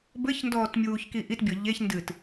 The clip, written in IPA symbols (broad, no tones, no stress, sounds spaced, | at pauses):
b ɘ ç n d ɔː t mʲ uː ç k i ʔ i t bʲ ɔ ʎ e ç n d ɨː t